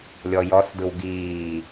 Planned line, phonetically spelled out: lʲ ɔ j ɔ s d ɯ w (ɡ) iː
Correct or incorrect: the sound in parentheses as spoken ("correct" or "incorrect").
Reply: correct